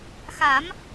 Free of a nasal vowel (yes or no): yes